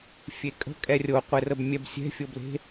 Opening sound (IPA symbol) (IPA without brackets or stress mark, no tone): fʲ